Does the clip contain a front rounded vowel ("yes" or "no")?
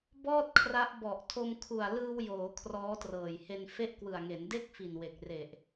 no